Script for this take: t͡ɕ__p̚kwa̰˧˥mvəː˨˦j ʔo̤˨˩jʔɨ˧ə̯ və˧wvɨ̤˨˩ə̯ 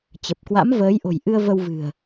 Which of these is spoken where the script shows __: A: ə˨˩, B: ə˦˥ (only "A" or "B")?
A